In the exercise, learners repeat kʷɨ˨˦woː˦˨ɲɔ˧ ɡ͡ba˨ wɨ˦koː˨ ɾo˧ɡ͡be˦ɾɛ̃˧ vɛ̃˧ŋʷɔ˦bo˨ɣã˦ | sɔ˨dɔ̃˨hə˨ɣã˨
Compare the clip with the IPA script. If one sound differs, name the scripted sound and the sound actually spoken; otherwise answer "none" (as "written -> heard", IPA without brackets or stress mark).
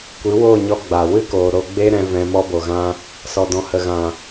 ŋʷ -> m